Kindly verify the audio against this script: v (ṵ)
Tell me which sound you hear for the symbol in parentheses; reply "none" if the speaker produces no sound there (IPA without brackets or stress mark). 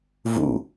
ṵ